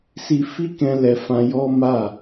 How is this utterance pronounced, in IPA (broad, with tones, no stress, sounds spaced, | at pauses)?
s i˧ f i˦ k ɛ̃˦ l ɛ˧ f ã˧ j ɔ˦ m a˦˨